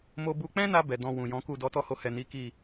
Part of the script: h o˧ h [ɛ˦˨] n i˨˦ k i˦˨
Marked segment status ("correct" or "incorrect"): incorrect